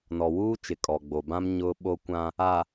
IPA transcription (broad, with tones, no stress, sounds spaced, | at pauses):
n ɔ˨ w uː˦ t͡ʃ ɪ˨ kʼ ɔ˨ ɡ͡b o˨ b ã˦ m ɲ ʊ˦ ɓ o˦ kʷ ã˦ | a˨